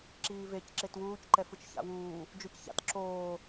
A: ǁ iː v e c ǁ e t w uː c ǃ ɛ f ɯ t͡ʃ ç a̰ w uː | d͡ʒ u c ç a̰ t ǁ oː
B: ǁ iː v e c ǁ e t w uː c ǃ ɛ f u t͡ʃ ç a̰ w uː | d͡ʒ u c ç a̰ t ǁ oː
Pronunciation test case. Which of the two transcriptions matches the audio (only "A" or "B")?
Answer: A